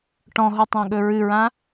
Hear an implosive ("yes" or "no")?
yes